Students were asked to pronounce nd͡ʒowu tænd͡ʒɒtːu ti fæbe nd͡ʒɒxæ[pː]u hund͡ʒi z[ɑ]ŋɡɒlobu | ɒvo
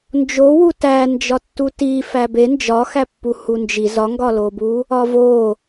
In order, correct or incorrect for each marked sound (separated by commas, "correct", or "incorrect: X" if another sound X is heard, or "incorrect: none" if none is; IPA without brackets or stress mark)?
correct, incorrect: ɒ